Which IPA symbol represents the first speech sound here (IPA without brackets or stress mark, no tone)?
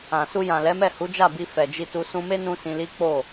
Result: ã